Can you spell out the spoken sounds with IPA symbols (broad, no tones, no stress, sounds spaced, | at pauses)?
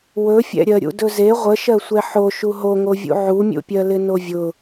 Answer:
w ɵ fʲ ɛ̰ ɾʲ ɜ ɾʲ ṵ d ɵ z e ʁʷ ə ʃ ɜ sʷ ɛ ħ o ʃ u ɦ o ŋ o vʲ ṵ ʕ u mʲ ṵ pʲ ɜ l ɪ n o vʲ ʊ